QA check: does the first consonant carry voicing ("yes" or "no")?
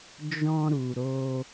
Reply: yes